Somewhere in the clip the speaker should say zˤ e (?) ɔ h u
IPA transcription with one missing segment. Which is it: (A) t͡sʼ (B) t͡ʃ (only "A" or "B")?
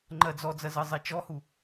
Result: B